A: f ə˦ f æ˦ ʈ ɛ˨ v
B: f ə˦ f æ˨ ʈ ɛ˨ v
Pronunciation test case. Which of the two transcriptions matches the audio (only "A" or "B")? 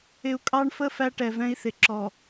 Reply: A